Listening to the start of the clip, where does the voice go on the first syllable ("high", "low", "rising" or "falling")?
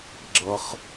low